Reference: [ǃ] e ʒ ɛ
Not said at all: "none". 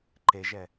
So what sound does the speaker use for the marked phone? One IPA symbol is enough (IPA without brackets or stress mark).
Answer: ǃ